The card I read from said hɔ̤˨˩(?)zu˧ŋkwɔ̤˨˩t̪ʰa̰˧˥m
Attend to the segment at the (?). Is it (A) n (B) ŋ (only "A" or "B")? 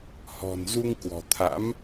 A